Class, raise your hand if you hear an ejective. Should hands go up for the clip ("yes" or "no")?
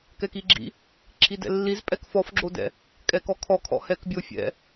yes